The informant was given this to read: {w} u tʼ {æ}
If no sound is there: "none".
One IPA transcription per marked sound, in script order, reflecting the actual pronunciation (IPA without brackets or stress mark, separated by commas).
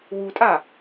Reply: w, a